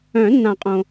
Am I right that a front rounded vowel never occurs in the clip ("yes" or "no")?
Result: no